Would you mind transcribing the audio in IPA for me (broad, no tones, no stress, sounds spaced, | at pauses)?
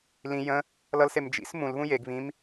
l ĩ j ə̃ | l ʌ l s e m d͡ʒ ḭ s m ũ l β ũ j e ɡ β ĩ m